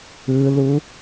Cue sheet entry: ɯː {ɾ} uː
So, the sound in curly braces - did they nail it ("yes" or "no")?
no